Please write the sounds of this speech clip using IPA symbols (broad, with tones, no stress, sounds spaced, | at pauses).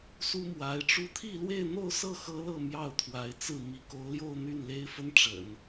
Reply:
s u˥ m w a˧˥ ɪ̯ ʈ͡ʂ u˥˧ t̪ʰ i˥˧ l w e˥˧ ɪ̯ n̪ o˥˧ ʊ̯ s ɤ˥˩ x ɤ˥ l ɤ˥˧ m j ɑ˥˩ ʊ̯ t̪ʰ w a˧˥ ɪ̯ t͡s ɹ̩˥˩ m i˧˥ k o˧˥ ʊ̯ l j o˥˧ ʊ̯ n̪ y˥˩ n l e˥ ɪ̯ f ə˥ n ʈ͡ʂ ə̰˨˩˦ n